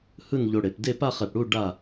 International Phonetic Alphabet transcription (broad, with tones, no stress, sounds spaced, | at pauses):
h ɯ˥˧ n ʎ o˧ ɽ e˩˧ p d e˥˧ p a˥˧ χ e˧˩ p ɽ u˥˧ ɖ a˥˧